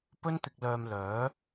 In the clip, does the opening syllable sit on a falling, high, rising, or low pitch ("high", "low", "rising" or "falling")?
high